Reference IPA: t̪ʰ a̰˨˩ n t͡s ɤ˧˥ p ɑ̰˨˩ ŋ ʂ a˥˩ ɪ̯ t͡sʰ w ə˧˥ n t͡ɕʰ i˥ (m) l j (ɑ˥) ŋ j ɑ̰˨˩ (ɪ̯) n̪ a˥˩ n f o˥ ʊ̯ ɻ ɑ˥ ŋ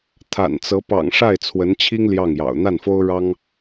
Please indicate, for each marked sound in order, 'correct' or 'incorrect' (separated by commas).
incorrect, incorrect, incorrect